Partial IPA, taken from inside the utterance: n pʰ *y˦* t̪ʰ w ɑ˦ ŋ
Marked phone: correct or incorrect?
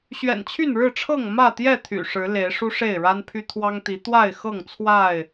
correct